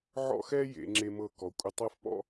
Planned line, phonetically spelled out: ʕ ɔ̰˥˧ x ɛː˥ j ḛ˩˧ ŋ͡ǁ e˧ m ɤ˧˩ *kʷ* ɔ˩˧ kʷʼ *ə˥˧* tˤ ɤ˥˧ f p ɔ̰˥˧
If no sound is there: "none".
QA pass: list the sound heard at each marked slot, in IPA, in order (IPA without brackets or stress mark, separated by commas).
k, ə˧